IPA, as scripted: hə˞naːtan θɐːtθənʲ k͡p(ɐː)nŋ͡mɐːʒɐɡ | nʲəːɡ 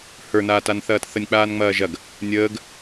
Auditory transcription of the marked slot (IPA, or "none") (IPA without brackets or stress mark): aː